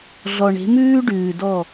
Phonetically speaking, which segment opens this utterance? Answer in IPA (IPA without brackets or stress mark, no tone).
ɮ